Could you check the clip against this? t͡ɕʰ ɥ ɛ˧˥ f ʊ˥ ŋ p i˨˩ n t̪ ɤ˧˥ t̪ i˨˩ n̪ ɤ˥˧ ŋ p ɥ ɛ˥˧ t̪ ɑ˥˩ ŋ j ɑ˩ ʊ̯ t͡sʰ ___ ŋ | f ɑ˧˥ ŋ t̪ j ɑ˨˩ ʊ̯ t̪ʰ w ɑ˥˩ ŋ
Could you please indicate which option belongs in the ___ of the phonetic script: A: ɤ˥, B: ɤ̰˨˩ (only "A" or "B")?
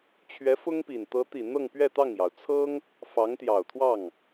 A